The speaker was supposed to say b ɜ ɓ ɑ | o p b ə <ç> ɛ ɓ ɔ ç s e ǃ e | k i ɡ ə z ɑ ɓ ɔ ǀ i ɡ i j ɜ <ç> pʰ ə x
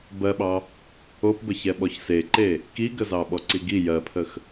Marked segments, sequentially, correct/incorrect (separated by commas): correct, incorrect